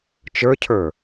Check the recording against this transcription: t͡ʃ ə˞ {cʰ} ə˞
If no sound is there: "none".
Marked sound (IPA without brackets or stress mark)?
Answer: cʰ